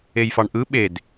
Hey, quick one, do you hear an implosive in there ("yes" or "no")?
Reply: yes